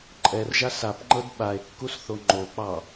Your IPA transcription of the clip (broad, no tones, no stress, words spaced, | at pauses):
ǃʼɛrʒa sapŋ͡ǃɤd ɓae̯kːusθo ŋ͡ǃok͡pɑ